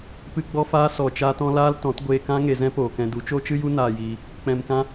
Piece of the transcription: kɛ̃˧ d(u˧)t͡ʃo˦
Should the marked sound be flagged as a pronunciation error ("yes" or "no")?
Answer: yes